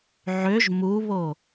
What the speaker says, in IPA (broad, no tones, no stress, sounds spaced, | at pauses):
ʕ ø ʒ m u β o